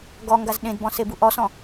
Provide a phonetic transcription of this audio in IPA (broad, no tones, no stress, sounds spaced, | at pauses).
ɡ ɔ ŋ ɡ a z ɗ ẽ d b ɔ̃ s e b u ʔ ɔ s ɔ̃